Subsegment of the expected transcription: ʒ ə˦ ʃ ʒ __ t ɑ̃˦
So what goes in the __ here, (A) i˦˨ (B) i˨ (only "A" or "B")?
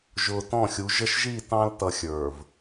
A